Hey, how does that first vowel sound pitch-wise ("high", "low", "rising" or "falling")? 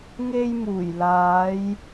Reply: high